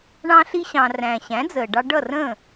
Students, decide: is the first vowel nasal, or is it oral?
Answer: nasal